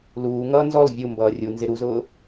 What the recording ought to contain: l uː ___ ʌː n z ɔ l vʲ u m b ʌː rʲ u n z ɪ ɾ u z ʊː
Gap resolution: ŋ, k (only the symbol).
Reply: ŋ